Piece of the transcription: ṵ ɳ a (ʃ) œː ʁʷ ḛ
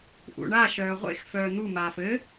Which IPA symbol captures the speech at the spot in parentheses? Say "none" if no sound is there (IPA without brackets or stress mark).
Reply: ʃ